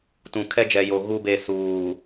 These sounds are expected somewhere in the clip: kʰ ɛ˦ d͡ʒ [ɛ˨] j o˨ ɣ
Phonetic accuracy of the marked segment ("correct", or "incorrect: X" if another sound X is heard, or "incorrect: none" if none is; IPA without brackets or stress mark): correct